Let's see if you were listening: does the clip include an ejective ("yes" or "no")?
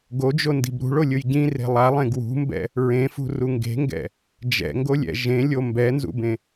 no